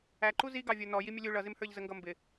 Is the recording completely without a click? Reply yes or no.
no